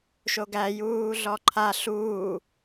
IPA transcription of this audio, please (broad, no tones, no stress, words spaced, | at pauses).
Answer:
ʃoɡæ juːɮɔǃʰa ɬuː